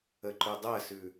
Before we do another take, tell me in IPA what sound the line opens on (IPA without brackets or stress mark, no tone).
ə